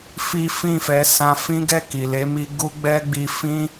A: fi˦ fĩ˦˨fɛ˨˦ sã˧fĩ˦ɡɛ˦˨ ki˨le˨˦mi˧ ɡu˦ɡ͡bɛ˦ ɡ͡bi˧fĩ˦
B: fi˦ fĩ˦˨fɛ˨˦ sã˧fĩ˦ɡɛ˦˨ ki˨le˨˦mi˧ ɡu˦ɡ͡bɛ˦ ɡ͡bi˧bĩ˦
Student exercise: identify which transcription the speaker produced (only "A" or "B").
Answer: A